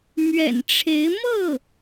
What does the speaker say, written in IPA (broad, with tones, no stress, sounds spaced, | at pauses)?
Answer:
m ɥ ɛ̰˨˩ n ʈ͡ʂʰ e˧˥ ɪ̯ m ɤ˥˩